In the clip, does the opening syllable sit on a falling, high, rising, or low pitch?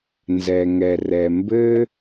low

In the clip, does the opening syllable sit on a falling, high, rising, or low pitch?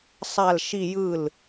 falling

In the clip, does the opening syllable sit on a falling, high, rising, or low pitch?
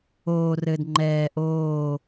low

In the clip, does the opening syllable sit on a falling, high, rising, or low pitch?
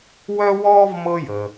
high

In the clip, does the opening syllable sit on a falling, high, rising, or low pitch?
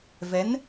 rising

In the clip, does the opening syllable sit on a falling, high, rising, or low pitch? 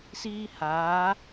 high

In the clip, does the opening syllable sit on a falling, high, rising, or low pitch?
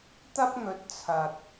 high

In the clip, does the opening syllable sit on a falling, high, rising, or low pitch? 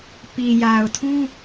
low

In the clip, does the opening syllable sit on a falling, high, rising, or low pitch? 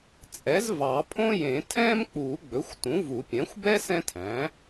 rising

